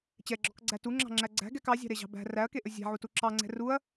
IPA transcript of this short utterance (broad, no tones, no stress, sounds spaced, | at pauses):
t͡ɕ ɛ ɡ͡ǁ ɔ k ɡ͡ǀ æ t u ŋ͡ǁ ɑ̤ ŋ͡ǁ æ ɡ͡ǀ æ̤ ɡ ɛ k ɑ zʲ ɑ̤ ɾ e ʑ ɑ̤ b æ̤ r æ ɐ̯ k e ʔ ɵ zʲ æ̤ ʕ u t u ǁ ɑ ŋ͡ǀ ɛ̤ r u ɐ̯